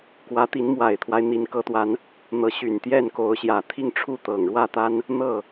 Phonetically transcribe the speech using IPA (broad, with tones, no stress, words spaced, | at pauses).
kwä˧˥t̪i˧˥n mwa˨˩ɪ̯t̪ʰwa˦ɪ̯ n̪i˧˥nkɤ˧˥t̪wa˧˥n | n̪ɤ˧˥ɕy˨˩nt̪jɛ˥˩n ko˧˥ʊ̯ɕjä˨˩ t̪ʰi˥˧ŋʈ͡ʂʰu˥˩ t̪ɤ˨˩ŋɻwä˥˩t̪a˥n | n̪ɤ˥˩